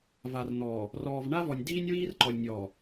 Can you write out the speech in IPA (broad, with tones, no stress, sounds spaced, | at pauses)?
v a˨ r n̪ ɔː˨ | r ɔː˨ v ɳ a˦ v ɔ˨ nʲ d iː˦ nʲ w iː˦ r ǃ ɔ˨ lʲ nʲ ɔː˨